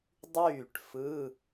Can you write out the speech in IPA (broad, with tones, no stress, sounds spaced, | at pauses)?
dˤ yː˥˩ ʈ f ɯ˧˥˧